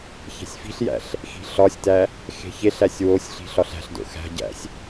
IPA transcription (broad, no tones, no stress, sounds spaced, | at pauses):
ç e̤ sʲ f i̤ ɬ j æ̰ ɬ | x i̤ ɬ ɒ sʲ t æ | x e̤ ç e ɬ æ sʲ w o sʲ ɬ i̤ ɬ ɒ ɬ æ̤ ɬ d o̰ x æ̤ ɟ æ̰ sʲ